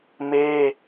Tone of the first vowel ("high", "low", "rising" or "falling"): high